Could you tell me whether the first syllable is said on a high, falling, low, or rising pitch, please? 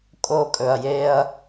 high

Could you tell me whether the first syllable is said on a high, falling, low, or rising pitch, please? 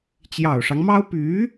low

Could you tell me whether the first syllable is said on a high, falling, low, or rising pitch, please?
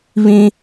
high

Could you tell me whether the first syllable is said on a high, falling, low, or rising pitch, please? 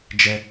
low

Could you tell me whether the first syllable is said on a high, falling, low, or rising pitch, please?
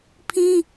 high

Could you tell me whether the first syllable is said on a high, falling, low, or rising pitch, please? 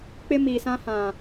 high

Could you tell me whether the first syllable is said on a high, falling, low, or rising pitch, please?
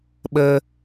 low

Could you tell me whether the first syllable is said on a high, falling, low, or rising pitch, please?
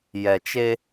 low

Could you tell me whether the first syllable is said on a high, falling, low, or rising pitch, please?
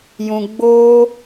high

